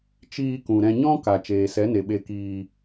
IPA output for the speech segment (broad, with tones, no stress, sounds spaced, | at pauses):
t͡ʃ iː˧ k ũ˨ ɾ ɛ̃˧ ɲ ɔ̃˦ k a˨ t͡ʃ eː˨ s ɛ˨˦ n e˨ ɓ e˧ k iː˧